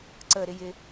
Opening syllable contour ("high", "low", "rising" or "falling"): falling